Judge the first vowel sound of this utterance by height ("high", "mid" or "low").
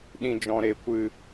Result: high